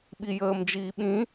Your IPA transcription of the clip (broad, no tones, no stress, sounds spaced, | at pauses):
ɓ i j əː m d͡ʒ iː ɓ ĩ